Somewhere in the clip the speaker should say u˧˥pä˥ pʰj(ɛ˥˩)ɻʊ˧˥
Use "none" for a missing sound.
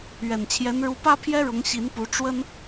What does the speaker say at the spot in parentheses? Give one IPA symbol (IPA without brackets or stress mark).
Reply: ɛ˥